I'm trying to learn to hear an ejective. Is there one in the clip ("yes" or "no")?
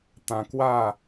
no